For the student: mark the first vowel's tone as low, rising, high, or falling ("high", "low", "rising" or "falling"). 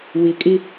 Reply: low